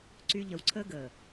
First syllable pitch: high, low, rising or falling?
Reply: high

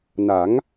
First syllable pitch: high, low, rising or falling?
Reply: rising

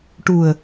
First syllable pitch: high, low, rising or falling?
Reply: low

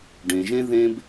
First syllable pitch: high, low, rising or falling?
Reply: low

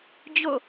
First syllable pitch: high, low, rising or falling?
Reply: falling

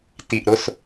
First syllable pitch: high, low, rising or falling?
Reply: low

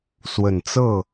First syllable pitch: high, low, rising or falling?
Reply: low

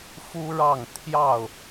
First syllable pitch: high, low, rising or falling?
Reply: high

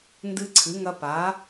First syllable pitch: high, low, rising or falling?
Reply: high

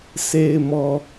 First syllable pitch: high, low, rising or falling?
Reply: low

